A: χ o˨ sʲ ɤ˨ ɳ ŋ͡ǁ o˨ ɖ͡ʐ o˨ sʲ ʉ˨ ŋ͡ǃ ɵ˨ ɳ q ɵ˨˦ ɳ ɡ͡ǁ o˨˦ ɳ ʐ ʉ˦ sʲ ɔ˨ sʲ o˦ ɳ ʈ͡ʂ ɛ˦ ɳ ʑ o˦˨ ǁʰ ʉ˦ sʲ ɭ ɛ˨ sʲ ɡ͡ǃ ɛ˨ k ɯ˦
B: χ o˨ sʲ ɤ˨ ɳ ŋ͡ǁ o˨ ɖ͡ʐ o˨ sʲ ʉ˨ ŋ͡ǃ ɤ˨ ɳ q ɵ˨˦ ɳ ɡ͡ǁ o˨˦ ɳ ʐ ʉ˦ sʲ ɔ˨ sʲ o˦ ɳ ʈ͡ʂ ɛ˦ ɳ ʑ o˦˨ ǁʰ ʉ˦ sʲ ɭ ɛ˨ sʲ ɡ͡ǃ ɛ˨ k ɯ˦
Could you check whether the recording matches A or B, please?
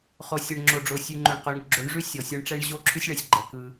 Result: A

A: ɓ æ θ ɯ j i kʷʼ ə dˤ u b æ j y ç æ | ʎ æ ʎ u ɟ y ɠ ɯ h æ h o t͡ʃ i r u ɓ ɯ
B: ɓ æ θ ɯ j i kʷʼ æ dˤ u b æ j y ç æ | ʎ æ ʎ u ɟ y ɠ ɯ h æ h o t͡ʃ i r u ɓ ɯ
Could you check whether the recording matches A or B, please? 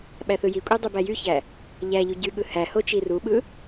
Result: B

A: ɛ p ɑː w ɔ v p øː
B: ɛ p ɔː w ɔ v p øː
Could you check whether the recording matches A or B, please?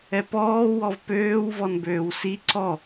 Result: B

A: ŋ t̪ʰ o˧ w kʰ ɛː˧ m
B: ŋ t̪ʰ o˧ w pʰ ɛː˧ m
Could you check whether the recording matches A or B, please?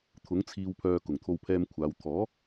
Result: B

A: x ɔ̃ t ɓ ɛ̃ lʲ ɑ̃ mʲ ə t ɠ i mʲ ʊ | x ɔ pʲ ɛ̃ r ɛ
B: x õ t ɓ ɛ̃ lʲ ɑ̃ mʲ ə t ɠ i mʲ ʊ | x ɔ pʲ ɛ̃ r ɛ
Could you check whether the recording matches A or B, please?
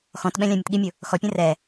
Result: A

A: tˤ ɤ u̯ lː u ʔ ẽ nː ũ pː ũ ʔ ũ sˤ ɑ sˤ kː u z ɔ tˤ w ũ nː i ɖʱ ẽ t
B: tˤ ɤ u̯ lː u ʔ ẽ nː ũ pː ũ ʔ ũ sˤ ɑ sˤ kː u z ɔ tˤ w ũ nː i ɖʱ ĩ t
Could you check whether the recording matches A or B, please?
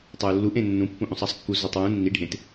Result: A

